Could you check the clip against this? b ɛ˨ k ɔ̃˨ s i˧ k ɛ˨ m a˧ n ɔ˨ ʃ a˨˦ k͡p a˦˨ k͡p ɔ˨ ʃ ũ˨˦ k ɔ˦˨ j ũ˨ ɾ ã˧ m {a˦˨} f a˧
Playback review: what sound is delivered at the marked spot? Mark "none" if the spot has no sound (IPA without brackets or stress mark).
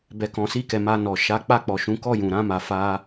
a˨